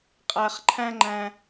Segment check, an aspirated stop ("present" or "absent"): present